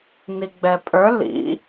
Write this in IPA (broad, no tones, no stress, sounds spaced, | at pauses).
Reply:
n i ɡ͡b ɛ pʼ ə˞ l ḭ